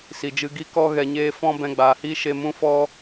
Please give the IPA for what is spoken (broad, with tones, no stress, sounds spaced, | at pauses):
s i˨ d͡ʒ ɨ˧ ɡ i˦ k ɔ˦ ɣ ɛ˧ ɲ eː˦ f ɔ̃˦ b ɛ̃˧ ɡ͡b aː˨ h iː˦ ʃ e˧ m ũ˦ f ɔ˦